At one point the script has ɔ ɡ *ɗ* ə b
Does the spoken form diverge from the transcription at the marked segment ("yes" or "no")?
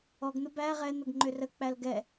yes